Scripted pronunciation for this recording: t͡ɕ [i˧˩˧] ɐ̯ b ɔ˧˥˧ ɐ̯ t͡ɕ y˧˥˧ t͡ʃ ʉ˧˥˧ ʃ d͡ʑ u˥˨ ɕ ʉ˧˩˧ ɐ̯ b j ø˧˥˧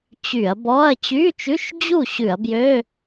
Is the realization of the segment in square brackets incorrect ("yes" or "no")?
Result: yes